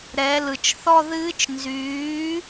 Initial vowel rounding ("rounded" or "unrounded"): unrounded